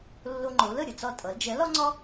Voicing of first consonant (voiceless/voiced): voiced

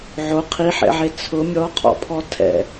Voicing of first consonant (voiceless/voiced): voiced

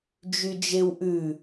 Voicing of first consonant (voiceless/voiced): voiced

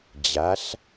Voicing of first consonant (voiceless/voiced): voiced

